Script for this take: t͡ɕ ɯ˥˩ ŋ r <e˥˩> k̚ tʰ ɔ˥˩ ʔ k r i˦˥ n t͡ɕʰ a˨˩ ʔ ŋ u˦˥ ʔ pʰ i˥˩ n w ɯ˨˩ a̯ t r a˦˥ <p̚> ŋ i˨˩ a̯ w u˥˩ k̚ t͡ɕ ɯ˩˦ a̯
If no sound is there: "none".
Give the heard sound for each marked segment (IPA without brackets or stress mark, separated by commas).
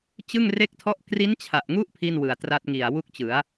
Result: e˥˩, t̚